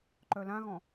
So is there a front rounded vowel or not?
yes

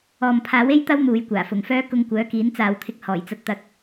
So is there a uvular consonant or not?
no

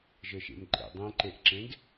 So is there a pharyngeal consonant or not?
no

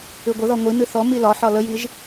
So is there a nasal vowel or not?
no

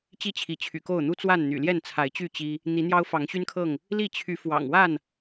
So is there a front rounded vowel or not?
yes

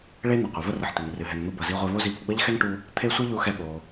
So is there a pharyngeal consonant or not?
yes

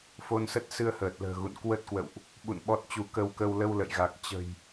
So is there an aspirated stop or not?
no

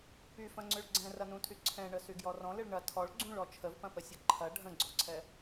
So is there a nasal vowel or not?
yes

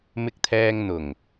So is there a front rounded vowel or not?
no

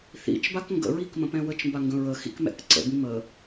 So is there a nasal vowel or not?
yes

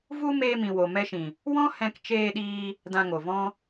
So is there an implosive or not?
yes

